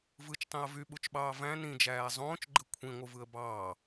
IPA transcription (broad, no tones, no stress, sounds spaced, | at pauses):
v ɯ t͡ʃ tˤ ĩ ə̯ v y ɓ u t͡ʃ ɓ ɑː v æ̃ n ĩ d͡ʒ æː zˤ õː t͡ʃ ɡ͡ǃ ɯ kʷʰ ĩ ŋʷ ɯ v ɯ ə̯ b ɑː